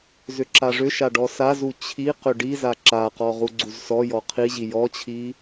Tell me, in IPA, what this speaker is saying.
z ʏ ǁ a ʐ ʏ ʃ a ɖ ɔ s a z u t͡ɕʰ i q ʏ ɖ i z a ǁ a q ɔ ʁ u ɡ͡ǀ u z s ɔ j ɔ qʰ i ʑ i j ɔ t͡ɕʰ i

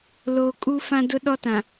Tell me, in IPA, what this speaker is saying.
l oː˨ kʼ u˦ f ã˦ d ʊ˦ ɗ ɔ˦ t ã˨

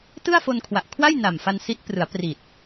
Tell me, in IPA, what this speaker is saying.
t ɯ˥˩ a̯ f o˧ n kʰ w a˨˩ ʔ kʰ w a˥˩ j n a˨˩ m f a˧ n s i˦˥ t̚ p r ɯ˩˦ a̯ p r i˨˩ t̚

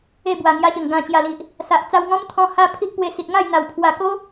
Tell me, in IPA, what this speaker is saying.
e˥˧ b w a˨˩ ŋ j a˧ ɕ ə˨˩ ŋ ɡ ã˨˩ t͡ɕ j a˨˩ l i˨ ʔ | s a˨ ʔ t͡s a˧ w ŋ ɔ̃˦ m t̪ʰ ɔ̃˧ h a˦ pʰ i˦ ʔ p w e˧ s i˨ t̚ ŋ a˥˧ j n̪ a˨˩ w pʰ w a˨˩ k o˦

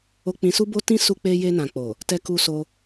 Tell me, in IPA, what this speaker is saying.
o˧ k͡p ĩ˧ s u˦ b o˦ t ĩ˦ s u˧ k͡p e˧ j e˧ n ã˨ k͡p o˨ | t ɛ˧ k u˧ s o˧

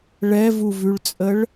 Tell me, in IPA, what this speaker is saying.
ɭ ɛ v u v ʉ ɭ t͡sʼ ə ɭ

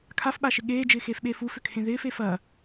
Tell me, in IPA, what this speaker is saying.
kʰ a f ɓ a ʃ ɪ ɠ eː d͡ʒ ɪː x eː f ɓ eː f u f ʏ kʰ ẽ ð ɪː f e f ɐ

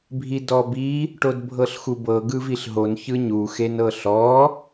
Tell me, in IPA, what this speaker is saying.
bʱ i d ɔ b i | ʈ o d bʱ ɤ ɬ x u b ɤ ɡ ɯ v i ɬ ɦ o n ç ɯ ɲ u x e n ɤ ɬ ɔ

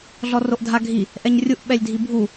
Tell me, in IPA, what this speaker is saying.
ɮ ɔ r o ʔ dʱ a ɡʱ i | ʔ ɛ ɲ rʲ u ʔ ɓ ɛ lʲ dʱ i bʱ u

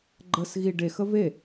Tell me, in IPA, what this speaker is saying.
ɡ͡ǃ ə s ɣ i ɖ e x ə v e

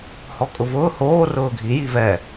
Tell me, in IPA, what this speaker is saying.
h ɔ kʼ ʊ v ʊː h oː r ʊː ɡʱ i j i v ɛ

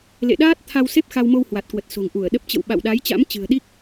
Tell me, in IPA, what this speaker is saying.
l ḛ˧˨ ɗ aː˦˥ t̚ t̪ʰ a˧ w s e˦˥ p̚ x a˧ w m o˧ w h w a˨˩ t̚ k w ə˨˩ t̚ s o̤˨˩ ŋ ʔ u˧˩ ə̯ ɗ ə˦˥ p̚ t͡ɕ ə̰˧˨ w ɓ a̰˧˨ w ɗ a˨˦ j t͡ɕ a̰˧˥ m t͡ɕ ɨ̤˨˩ ə̯ ɗ i˦˥ k̚

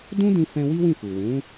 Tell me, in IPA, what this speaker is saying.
d ũ˦ d ĩ˧ f ɛ̃˧ w i˦ w ĩ˦˨ f u˨ w ũ˨˦

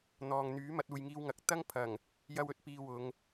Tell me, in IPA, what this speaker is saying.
n̪ ɔː˨ ŋ n̪ yː˨˥ m ɐ˧ t̚ uː˨ j ŋ iː˧ w ŋ ɐ˨ k̚ t̪ ɐ˥ ŋ pʰ ɐ˨˩ ŋ | j ɐ˥ w ɵ˥ t̚ p iː˧ w ʊ˨˧ ŋ

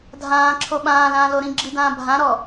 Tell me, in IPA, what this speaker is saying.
dʱ ãː ǁʰ o ɓ ãː l ãː l o ɾ ĩ ɡ͡ǁ i d ãː bʱ ã ɾ ɔ

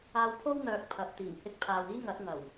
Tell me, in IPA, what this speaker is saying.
aː˧ w pʰ o˥ w n̪ œː˨ k̚ pʰ ɐ˨ p̚ t̪ iː˨˩ ŋ h ɪ˧ k̚ pʰ aː˨ w iː˥ ŋ ɐ˨˥ t̚ ŋ ɐ˨˩ w

